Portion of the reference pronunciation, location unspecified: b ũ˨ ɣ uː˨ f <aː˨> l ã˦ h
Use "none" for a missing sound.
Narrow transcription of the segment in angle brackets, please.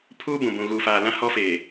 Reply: aː˨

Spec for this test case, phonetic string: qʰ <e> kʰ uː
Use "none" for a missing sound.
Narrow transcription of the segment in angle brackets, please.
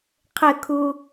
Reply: ɘ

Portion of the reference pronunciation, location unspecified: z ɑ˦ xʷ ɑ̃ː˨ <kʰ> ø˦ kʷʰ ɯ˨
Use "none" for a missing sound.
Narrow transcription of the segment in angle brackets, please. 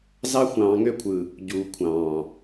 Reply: ŋ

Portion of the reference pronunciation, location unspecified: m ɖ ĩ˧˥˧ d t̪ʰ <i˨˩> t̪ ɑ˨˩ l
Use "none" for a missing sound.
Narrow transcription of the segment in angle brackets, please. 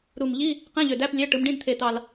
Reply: e˨˩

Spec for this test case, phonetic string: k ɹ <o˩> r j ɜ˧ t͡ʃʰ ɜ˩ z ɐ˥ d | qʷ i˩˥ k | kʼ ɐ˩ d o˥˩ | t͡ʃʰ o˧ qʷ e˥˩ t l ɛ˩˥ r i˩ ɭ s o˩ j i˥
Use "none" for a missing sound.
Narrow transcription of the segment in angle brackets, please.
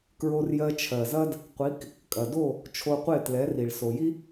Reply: o˧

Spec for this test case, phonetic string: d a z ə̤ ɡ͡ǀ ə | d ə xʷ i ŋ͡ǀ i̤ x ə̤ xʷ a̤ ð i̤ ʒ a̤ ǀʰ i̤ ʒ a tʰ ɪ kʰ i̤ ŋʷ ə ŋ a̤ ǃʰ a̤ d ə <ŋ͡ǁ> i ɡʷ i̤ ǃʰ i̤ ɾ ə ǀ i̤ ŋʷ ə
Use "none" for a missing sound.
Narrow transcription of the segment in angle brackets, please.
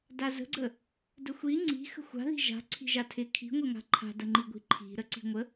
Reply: ŋ͡ǃ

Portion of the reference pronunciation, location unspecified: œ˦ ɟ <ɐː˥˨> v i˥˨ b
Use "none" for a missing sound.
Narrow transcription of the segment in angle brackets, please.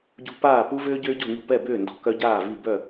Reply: aː˥˨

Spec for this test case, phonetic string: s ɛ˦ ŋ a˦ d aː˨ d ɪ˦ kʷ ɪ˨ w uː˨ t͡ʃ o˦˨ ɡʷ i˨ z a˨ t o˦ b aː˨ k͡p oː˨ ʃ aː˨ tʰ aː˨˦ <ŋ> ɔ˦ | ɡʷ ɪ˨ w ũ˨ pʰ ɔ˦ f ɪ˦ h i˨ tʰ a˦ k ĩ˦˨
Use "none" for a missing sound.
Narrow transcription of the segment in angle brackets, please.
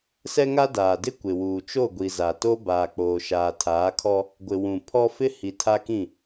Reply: kʰ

